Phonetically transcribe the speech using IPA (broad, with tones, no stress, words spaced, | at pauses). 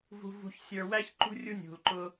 vṳ˧ vṳ˧ç sʲə˞˧ wæ˦çǃṳ˦ rʲu˦nʲṳ˨l ǃʊ˧